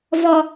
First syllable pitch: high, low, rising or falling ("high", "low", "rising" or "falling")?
high